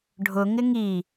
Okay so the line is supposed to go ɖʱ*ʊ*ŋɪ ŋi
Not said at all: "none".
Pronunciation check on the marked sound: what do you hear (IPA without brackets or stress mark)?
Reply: ʊ